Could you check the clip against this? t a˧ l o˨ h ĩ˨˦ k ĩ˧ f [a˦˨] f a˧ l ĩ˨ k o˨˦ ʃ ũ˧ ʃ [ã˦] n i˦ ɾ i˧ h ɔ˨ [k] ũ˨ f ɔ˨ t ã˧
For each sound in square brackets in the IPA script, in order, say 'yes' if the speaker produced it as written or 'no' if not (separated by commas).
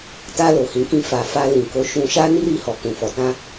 no, no, yes